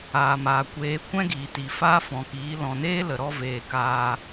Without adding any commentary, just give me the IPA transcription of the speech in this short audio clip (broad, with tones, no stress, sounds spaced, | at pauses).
aː˨ m aː˨ kʷ eː˨˦ kʷ ɛ̃˦ ɡ iː˨ t i˨ f aː˦ f ɔ̃˨ k iː˨˦ l ɔ̃˨ n eː˦ l ə˨ ɾ ɔ˧ v eː˨ k aː˧